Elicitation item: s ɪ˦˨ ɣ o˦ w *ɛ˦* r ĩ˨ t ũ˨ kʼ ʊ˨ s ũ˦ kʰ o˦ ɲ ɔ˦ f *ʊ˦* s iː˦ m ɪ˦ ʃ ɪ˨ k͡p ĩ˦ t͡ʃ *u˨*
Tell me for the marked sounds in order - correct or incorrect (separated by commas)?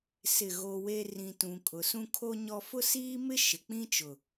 incorrect, correct, incorrect